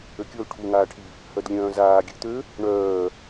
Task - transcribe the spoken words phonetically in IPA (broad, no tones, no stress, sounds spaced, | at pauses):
ø kʲ o l ʈʰ u ŋ aː ʈʰ i | h œ d lʲ œ̃ː z aː ɡʲ ø t̪ ø | ɳ œː